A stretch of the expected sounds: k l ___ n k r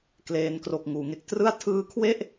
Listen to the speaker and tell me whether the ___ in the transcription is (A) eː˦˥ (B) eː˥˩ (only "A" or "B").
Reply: A